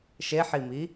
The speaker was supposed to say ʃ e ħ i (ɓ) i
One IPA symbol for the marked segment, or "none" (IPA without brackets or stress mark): m